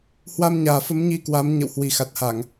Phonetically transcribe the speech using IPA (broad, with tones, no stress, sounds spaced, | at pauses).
h w a˧ m ɲ aː˨˩ f ə˨˦ m ɲ i˧ k w a˨˦ m ɲ ə̰˧˨ w h w i˨˩ x a˨˩ t̚ h a˧˩˨ ŋ